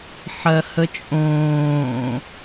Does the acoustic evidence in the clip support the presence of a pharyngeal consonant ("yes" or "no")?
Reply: yes